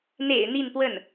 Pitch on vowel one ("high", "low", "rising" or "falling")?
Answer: low